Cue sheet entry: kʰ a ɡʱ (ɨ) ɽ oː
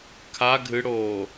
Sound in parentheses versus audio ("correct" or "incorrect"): correct